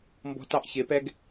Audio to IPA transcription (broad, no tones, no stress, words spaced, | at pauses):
mbɔ̤tɑʔ çɪpɛɡ